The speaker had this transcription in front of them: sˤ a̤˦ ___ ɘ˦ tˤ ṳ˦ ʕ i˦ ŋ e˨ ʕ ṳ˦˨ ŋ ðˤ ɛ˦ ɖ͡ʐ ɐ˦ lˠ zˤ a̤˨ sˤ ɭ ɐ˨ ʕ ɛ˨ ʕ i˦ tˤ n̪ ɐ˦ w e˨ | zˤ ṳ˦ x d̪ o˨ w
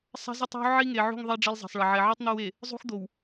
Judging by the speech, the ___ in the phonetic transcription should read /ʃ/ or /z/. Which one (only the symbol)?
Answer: z